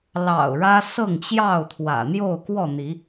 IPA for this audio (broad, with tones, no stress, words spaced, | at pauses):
lɑ̰˨˩ʊ̯ ɻä˦sɤ˥˨ŋt͡ɕjɑ˥˨ʊ̯t̪ʰwä̰˨˩ n̪jo˥˨ʊ̯kwɔ˥˨n̪i˨˦